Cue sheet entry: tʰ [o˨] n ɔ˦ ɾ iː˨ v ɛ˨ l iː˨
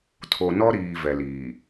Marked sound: correct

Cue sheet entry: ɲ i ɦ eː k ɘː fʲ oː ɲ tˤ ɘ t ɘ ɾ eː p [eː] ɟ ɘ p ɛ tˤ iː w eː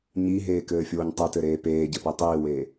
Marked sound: correct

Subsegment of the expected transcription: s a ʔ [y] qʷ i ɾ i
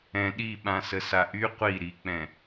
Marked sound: correct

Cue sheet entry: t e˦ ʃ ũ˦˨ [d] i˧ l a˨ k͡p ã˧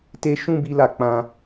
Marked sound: incorrect: b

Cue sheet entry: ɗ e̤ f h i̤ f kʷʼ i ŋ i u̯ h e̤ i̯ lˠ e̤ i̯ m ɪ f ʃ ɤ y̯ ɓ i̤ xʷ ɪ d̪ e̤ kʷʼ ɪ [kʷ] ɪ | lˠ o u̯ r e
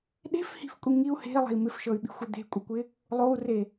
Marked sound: correct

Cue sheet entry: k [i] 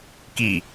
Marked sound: correct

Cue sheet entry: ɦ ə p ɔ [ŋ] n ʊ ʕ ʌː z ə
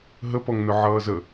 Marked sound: correct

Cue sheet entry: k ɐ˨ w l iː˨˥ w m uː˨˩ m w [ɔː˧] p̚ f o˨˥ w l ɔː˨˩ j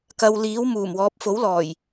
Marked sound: incorrect: ɔː˨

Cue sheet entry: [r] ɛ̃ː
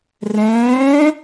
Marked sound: correct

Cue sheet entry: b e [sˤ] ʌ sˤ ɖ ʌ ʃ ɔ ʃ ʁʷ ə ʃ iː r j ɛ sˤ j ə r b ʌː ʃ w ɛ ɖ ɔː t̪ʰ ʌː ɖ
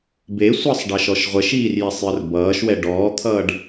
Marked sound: incorrect: sʷ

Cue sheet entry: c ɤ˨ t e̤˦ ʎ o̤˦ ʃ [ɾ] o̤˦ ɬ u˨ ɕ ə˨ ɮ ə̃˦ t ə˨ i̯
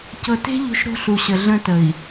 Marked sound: correct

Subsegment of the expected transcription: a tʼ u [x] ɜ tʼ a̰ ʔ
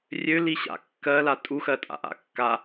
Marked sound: correct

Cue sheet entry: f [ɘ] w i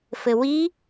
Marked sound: correct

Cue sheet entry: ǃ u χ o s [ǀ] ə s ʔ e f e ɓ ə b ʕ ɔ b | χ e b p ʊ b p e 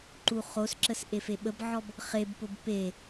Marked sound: incorrect: ǁ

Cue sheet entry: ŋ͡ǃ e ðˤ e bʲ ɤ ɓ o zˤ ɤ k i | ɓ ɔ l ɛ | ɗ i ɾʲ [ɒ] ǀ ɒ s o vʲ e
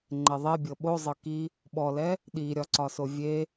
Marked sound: correct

